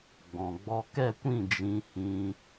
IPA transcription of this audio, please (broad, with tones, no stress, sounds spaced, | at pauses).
ɡ͡b ɔ̃˨ ɡ͡b ɔ˧ k ɛ˦˨ kʷ ĩ˦˨ d͡ʒ ĩ˧ h ĩ˧